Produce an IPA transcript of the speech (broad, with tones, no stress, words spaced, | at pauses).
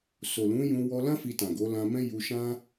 so˨lũ˨˦ jũ˧ wɔ˧lã˦ fi˧tã˨ɡo˨˦ lã˧mɛ̃˦ ju˧ʃã˦